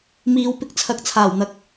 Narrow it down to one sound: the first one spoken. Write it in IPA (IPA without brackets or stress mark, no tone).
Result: m